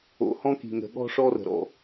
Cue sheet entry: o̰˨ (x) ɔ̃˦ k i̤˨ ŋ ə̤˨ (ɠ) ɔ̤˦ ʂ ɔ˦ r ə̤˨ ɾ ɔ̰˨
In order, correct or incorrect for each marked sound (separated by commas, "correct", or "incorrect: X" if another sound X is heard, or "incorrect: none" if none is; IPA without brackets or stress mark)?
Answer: incorrect: h, correct